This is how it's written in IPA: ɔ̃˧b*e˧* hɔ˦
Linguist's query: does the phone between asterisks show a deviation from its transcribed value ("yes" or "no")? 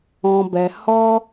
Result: yes